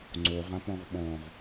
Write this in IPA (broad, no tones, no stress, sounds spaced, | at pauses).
ŋ͡ǀ o ʁ ã p ɔ̃ ʁ ɓ ɔ̃ ʁ